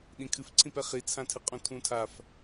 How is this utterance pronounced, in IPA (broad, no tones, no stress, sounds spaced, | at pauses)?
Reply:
ɗ ĩ kʰ ɨ f ǀʰ ĩ p ɛ χ i t͡sʰ ã tʰ ɨ qʼ ũ tʰ ũ tʰ a f